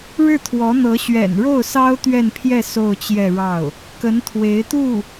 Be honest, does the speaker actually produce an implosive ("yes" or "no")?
no